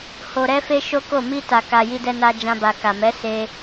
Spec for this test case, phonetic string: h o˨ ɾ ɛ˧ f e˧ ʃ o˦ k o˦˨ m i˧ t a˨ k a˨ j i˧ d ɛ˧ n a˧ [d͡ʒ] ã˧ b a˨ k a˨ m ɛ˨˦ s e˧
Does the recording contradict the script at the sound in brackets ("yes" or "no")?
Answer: no